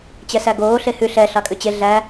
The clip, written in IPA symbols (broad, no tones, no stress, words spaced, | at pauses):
t͡ɕɛsæɡoː ɬehʉ ɬɛ ɬɑkʼʉt͡ɕe ɮæ